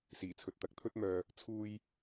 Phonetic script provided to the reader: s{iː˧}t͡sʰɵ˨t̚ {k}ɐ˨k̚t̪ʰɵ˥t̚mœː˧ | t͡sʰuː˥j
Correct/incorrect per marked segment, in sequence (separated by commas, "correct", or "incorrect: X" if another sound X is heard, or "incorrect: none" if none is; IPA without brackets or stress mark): incorrect: iː˨˩, incorrect: t̪